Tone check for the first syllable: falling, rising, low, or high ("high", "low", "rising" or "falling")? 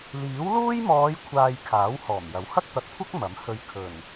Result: rising